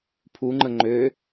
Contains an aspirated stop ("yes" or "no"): yes